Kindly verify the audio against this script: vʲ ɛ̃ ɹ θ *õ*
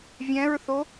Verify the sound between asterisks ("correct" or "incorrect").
incorrect